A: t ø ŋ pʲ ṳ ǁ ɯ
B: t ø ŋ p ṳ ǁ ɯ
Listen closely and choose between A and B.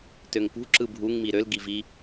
B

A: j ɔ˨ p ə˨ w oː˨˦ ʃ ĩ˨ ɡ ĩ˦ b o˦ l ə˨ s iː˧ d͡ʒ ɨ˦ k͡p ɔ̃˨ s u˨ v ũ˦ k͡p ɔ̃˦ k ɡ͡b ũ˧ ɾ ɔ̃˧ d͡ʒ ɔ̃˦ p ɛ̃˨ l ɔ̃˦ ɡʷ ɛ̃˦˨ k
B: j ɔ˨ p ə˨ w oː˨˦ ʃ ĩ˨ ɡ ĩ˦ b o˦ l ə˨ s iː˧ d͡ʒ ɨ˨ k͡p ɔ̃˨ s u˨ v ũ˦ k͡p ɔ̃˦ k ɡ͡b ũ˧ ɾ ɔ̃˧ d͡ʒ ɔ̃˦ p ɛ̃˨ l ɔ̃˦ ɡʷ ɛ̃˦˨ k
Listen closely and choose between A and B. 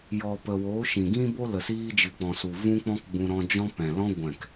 B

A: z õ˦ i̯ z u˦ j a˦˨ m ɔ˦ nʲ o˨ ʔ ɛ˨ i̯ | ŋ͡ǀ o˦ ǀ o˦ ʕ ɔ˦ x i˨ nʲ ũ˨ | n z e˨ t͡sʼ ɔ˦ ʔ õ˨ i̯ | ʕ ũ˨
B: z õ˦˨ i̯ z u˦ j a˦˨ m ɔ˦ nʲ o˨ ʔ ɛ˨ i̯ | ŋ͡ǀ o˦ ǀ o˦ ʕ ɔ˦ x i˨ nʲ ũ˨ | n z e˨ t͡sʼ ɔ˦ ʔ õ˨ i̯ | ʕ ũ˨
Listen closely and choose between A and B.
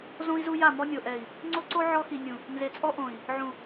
A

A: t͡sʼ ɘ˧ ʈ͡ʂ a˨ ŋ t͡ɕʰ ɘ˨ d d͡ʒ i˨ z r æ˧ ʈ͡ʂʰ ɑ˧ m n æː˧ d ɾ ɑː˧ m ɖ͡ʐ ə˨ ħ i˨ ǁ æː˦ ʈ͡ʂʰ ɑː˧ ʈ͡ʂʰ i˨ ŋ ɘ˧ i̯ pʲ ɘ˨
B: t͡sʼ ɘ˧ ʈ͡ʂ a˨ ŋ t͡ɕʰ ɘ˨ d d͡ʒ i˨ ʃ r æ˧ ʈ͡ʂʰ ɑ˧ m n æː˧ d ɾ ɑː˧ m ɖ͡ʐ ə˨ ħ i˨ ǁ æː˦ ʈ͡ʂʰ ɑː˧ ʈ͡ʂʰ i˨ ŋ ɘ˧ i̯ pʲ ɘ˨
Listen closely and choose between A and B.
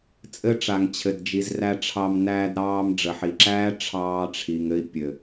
A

